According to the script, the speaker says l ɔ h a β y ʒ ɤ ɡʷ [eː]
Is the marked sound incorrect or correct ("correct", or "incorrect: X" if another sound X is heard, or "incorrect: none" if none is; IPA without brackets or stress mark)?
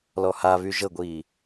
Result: incorrect: iː